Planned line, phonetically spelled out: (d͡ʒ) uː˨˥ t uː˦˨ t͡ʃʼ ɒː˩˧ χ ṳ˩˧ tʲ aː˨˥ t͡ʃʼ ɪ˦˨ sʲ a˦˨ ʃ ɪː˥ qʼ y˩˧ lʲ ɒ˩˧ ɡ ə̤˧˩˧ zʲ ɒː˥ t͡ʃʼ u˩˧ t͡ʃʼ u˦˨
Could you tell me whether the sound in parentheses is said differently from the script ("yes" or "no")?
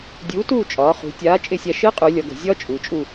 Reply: yes